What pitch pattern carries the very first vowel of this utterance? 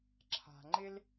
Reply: low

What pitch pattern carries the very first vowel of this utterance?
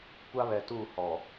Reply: high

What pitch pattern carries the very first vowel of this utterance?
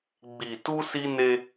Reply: low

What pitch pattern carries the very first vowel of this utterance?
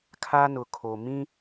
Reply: high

